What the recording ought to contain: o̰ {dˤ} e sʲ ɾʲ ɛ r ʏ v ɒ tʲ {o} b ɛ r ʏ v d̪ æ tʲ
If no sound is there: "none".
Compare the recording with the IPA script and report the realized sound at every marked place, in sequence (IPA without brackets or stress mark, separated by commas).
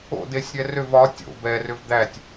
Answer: d, o̰